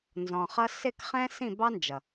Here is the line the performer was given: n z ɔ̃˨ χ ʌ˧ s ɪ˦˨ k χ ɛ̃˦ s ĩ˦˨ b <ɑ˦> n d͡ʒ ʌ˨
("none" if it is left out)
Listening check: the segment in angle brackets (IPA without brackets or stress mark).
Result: ɑ˦